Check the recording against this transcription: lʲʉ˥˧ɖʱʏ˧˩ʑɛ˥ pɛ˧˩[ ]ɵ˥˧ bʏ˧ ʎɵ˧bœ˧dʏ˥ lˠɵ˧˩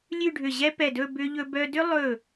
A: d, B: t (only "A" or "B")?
A